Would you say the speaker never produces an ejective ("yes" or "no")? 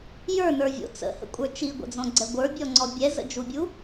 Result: no